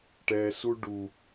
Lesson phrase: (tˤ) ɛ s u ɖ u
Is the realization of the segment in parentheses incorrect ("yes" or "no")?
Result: yes